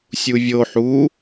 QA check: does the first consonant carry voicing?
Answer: no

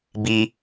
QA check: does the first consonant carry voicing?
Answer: yes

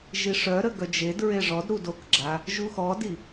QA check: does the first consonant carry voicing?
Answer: yes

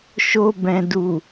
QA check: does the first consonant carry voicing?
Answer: no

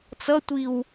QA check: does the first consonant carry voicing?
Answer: no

